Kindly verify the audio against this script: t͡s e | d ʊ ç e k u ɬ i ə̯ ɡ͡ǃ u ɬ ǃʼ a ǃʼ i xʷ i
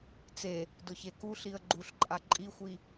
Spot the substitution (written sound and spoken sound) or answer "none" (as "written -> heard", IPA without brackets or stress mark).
none